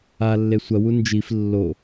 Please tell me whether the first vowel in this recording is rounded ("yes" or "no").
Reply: no